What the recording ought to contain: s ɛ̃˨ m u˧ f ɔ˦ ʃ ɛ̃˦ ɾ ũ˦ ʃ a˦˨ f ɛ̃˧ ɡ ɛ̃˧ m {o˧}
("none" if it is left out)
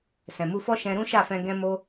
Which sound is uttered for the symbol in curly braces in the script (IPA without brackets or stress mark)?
o˧